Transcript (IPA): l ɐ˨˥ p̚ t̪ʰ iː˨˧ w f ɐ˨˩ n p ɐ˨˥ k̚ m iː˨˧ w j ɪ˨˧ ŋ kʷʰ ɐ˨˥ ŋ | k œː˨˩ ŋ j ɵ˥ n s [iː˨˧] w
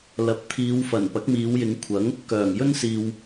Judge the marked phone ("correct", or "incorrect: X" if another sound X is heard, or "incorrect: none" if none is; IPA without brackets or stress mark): incorrect: iː˨